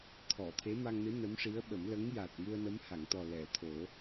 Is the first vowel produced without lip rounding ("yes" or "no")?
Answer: no